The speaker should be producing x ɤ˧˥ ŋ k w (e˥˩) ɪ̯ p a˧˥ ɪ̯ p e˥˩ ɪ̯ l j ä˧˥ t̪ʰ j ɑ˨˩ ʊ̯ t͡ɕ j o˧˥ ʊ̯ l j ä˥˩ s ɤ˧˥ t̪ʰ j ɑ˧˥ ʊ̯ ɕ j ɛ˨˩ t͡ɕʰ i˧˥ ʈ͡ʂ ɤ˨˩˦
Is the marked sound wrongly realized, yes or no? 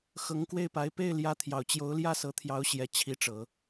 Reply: no